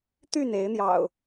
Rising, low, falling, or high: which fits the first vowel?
falling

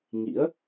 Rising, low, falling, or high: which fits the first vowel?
rising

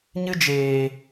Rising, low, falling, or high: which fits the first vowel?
high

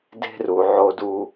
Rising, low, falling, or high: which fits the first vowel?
high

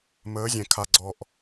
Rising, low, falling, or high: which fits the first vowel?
rising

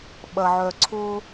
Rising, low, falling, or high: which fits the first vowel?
low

